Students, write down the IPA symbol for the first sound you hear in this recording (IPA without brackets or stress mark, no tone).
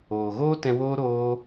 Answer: oː